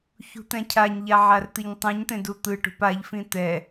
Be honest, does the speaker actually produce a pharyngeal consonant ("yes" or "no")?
yes